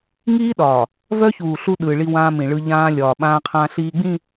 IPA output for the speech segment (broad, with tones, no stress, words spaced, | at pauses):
ŋiː˦ɗɒː˨ | vœ˦çuː˨ ɬu˦ ɗɯː˨ɭi˦ wãː˦mĩ˨ɭɯ˦ ʎãː˦ lʲɒː˨ɓãː˦ qʰã˦ɬiː˦ɡ͡bĩ˦˨